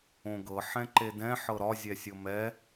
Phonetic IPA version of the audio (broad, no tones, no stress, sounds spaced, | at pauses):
õ ɡ ɤ ħ ɛ̃ ǃ e d ɛ̃ ħ ɤ ɾ ɒ zʲ ɛ sʲ ɤ m ɛ